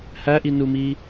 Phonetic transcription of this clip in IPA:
h æ ʔ i n u m i

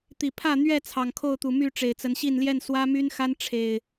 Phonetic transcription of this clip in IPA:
t̪ i˨˩ pʰ ä˥˨ n̪ ɥ ɛ˥˨ t͡sʰ ɑ˨˩ ŋ kʰ o˥˨ ʊ̯ t̪ u˨˩ m y˥˨ ʈ͡ʂ e˨˩ ɪ̯ t͡s ə˨˦ n ɕ i˥˨ n l j ɛ˥˨ n s w ä˦ m y˦ n x a˦ n ʈ͡ʂʰ e˨˩ ɪ̯

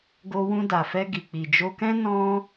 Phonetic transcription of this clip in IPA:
ɡ o˧ w ũ˧ d a˨ f ɛ˧ ɡ i˨ k͡p i˨ d͡ʒ o˧ k ɛ̃˦ n ɔ̃˦

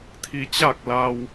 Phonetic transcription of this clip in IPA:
t̪ʰ i˧ t͡ɕ a˥˨ k̚ l a˧ w

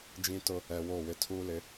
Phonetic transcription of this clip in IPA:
d͡ʒ ĩ˦ t ʊ˦ | ɛ˨ w o˦˨ w ɪ˦ tʰ uː˦ l ɪ˨˦

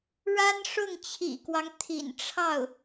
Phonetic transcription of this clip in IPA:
ɻ a˥ n ʂ ʊ˥˩ ŋ t͡ɕʰ ḭ˨˩ k w ɑ˦ ŋ t̪ʰ ḭ˨˩ n ʈ͡ʂʰ ɑ˥˩ ʊ̯

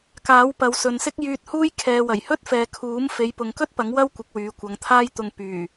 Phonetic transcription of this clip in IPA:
k aː˨˥ w p ɐ˨˧ w s ɵ˨ n s ɪ˥ k̚ j yː˧ t̚ h uː˥ j kʰ ɛː˨ w ɐ˨˩ j h ɵ˥ t̚ f ɛː˨ kʰ uː˨˥ m f e˨˧ j p ʊ˨ ŋ k ɵ˥ t̚ p ɐ˨˥ ŋ w ɐ˥ w kʷ ɪ˨˥ k̚ w yː˨˧ kʷ ɐ˨˧ ŋ t̪ʰ aː˥ j t̪ ʊ˧ ŋ p yː˨˩

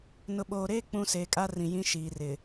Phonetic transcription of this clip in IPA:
n ʊ˨ ɓ oː˨ ɾ eː˦ k͡p ũ˦ s eː˨ kʼ a˦ r ĩ˨ j ĩ˦ ʃ iː˨ r ɪ˨

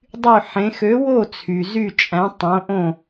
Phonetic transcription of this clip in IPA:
dˤ y˥˨ ħ ẽ˨˥ x ø˨˥ w o˥˨ t͡sʰ y˩ z y˥˨ t͡ʃʼ æ̃˨˥ tˤ õ˨˥ ʔ õ˥˨

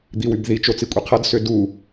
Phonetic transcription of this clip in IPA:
d̪ i w y b ð i t͡ʃ o t͡s i kʷʼ i qʰ ʌ d s ʏ d u

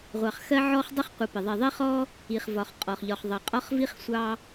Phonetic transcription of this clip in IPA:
ʁʷ ɑ˩ χ x ɜ˦ ʕ ɔ˦ χ dˤ ʊ˥ χ qʷ ʌ˨ p ɪ˩ ðˤ i˩ ðˤ i˦ χ ɔ˦ | i˩ χ v ɒ˩ χ qʼ ɔ˩ χ ʎ ɒ˨ χ ðˤ ɑ˨ qʼ ɒ˥ χ v i˥ χ sʷ ɑ˦

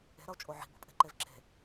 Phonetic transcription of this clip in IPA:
e̤ ɾ ʌ o̯ t͡ʃʼ o ʕ i̤ b ṳ pʼ e̤ ǃ e v ǁ e̤

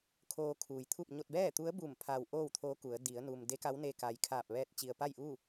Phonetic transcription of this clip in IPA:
kʰ oː˧ kʰ uː˩ j t̪ʰ u˥˨ p̚ ɲ o˧ t̚ b ɛː˥˨ t̪ u˧˥ ə̯ b u˧˩ m pʰ a˧ w ʔ oː˥˨ w t̪ʰ o˧˥ k u˩˧ ə̯ d i˩˧ ə̯ n u˩ m d e˧˥ k a˧˥ w n e˧ k a˩ j kʰ aː˧˩ p̚ ʋ ɛː˧ t̚ t͡ɕ i˩ ə̯ p a˥˨ j ʔ uː˥˨

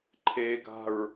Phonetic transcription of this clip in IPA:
ǃʰ e ɡ a̤ ɹ

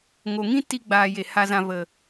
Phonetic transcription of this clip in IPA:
ŋ o˨ ŋ ĩ˦ t i˧ ɡ͡b aː˨ j e˨ h a˨ z ã˨ v ə˨

